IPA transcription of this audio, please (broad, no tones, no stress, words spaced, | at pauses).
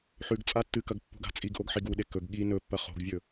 ħʉɡt͡sʼa tːɨkɐɡ pːṳɡa̤t͡sʼiɡʔoɡ ħiɡuɗe kɵɡ ɠi nɵpːɐ χo̤ɡvʲɵ